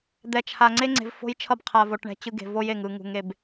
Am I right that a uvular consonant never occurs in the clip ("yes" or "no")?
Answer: no